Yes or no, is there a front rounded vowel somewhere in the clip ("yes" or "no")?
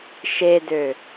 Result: yes